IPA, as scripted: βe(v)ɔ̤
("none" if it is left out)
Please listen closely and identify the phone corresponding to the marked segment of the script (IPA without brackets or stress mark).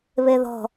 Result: ð